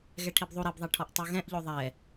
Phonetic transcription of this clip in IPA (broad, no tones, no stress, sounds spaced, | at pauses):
ɣ ɛ ʈʰ i b ðˤ u ɾ e b ðˤ ɛ ʈʰ ɔ ʔ tˤ u ɣ ɛ̃ ʔ ʎ o ðˤ ɛ